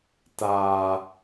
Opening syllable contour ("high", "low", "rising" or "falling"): low